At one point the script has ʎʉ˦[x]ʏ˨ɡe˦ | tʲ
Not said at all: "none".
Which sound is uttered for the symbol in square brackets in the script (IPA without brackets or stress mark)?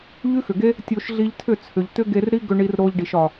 x